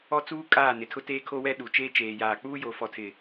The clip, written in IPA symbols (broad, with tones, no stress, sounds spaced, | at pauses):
ɔ˦ t͡s uː˦ kʼ aː˦˨ n ɪ˨ tʰ ʊ˦ t eː˦ kʰ o˦ w ɛ˦ ɗ u˨ t͡ʃ eː˦ t͡ʃ eː˨ j aː˨ k͡p uː˦ j o˨˦ f ɔ˨ tʰ ɪ˨